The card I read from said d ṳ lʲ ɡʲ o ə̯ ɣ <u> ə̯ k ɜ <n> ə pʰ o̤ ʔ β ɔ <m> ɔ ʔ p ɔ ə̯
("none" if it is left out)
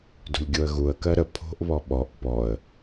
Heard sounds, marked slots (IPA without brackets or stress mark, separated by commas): u, ɾ, ɓ